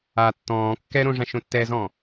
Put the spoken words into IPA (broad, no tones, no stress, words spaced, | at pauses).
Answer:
a tːɔ̃ː kːɛɾõʐã ʃõtːɛzɔ̃